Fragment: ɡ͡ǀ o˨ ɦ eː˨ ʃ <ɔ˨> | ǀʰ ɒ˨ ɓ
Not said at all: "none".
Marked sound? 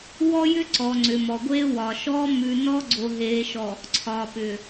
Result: ɔ˨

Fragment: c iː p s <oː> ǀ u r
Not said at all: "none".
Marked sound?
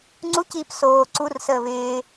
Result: oː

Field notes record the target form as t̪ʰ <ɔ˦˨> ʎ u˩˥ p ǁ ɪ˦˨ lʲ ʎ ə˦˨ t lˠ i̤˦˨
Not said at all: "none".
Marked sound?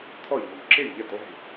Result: ɔ˦˨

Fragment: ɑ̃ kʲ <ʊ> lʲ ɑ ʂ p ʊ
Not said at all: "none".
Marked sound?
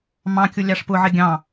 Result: ʊ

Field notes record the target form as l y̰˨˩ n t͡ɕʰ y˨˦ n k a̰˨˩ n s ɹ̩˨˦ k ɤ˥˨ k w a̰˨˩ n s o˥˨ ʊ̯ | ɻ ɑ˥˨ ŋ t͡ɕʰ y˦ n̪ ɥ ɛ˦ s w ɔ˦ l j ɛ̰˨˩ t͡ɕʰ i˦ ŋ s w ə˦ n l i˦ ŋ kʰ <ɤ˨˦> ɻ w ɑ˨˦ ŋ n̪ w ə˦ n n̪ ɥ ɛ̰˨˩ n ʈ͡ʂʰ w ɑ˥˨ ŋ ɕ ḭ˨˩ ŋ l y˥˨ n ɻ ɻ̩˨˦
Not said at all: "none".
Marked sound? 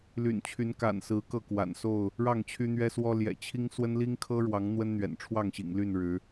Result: ɤ˦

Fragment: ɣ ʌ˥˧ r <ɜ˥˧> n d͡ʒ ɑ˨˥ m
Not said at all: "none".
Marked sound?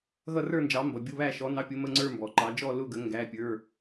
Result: ə˞˥˧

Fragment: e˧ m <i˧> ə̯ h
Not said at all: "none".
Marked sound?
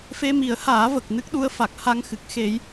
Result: i˨˩˦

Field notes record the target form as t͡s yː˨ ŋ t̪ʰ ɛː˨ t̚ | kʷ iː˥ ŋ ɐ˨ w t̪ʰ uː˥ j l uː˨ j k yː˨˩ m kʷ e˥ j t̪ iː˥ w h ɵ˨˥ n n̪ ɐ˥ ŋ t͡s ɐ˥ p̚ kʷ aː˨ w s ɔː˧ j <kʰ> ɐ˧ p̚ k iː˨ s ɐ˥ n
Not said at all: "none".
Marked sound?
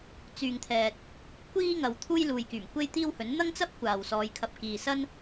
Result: kʰ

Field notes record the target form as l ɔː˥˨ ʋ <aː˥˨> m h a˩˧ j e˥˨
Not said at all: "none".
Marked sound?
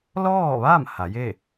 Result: aː˥˨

